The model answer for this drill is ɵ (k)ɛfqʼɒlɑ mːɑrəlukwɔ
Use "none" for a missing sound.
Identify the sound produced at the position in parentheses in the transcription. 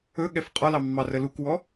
ɠ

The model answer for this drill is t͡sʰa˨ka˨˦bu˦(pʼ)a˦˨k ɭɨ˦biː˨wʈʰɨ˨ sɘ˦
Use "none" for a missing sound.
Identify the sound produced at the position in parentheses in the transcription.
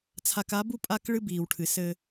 pʼ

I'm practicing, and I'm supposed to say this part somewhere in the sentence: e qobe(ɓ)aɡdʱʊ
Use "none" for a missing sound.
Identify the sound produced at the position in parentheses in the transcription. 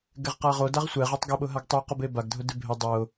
b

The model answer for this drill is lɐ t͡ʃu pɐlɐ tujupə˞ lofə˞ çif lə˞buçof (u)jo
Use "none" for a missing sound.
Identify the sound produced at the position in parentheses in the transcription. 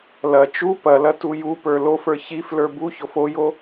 o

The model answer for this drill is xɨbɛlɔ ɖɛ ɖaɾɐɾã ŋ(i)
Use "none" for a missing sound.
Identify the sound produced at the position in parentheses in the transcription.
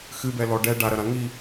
i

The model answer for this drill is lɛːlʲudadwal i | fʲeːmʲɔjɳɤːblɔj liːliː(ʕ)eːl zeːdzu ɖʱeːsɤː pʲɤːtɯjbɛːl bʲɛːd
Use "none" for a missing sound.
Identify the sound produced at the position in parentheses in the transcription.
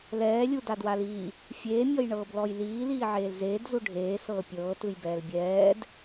ʕ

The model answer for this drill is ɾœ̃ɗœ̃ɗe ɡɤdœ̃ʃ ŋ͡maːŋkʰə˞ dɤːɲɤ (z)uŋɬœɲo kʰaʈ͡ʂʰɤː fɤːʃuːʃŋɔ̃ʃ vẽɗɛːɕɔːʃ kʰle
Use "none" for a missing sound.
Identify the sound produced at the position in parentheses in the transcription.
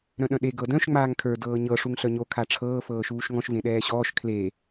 ʂ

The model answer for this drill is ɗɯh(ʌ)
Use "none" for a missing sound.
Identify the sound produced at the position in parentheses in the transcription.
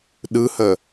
ə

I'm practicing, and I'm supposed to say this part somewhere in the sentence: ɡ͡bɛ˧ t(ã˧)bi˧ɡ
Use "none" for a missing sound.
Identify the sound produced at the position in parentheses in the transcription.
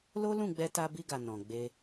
a˧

